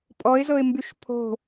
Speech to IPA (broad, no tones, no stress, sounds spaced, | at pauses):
pʼ ɔ ɪ̯ z ɤ ɪ̯ m b y ʃ pʰ o̤